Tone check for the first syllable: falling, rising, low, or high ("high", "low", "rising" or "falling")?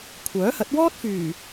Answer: rising